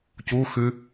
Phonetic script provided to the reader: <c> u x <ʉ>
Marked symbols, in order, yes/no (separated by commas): yes, yes